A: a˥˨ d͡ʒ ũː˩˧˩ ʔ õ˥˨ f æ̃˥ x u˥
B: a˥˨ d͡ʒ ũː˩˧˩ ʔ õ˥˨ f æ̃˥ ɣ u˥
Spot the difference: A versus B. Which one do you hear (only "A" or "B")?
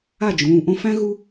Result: B